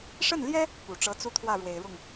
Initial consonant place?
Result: retroflex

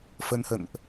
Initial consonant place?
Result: labial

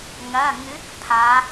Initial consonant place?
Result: velar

